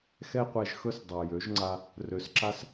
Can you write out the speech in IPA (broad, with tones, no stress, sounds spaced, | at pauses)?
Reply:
x ɛ˧ qʷ ɛ˨ ʒ x ɵ˦ s dˤ a˨ j ø˨˦ ʒ ŋ͡ǀ a˧ | r ø˨ s ǁ a˦ s